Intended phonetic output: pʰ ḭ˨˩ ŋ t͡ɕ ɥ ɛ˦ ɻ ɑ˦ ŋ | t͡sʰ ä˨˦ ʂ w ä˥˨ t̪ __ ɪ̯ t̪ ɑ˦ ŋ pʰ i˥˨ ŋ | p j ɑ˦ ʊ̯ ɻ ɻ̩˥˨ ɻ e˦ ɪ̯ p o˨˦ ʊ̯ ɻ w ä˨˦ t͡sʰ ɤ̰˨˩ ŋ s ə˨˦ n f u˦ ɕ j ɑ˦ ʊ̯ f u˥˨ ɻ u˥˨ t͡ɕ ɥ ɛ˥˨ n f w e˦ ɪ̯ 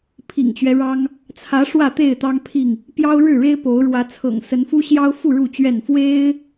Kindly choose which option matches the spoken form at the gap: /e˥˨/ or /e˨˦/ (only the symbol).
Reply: e˥˨